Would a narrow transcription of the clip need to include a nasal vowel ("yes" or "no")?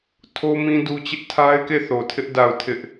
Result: yes